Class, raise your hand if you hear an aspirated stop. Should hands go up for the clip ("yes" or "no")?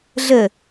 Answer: no